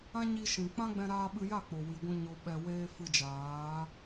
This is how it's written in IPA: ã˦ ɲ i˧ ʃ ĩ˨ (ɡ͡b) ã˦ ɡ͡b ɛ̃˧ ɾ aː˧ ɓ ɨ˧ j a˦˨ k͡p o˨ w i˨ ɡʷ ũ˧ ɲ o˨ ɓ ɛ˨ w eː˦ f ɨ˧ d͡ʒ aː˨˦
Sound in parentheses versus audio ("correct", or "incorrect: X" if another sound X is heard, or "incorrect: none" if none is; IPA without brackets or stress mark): incorrect: k͡p